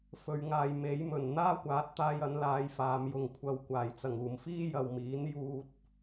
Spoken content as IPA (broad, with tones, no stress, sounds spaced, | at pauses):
f ɵ˨ ɥ ŋ aː˨ j m e˨˥ j m ɵ˨˩ n n̪ aː˥ kʷ aː˨˥ t̚ t̪ aː˧ j ɐ˨˧ n l aː˧ j f aː˨˧ m j ʊ˨ ŋ kʷʰ ɐ˨ w kʷ aː˨˩ j t͡s ɐ˨˩ ŋ uː˨˩ m f iː˥ j ɐ˨ w m iː˨˥ n j uː˨ t̚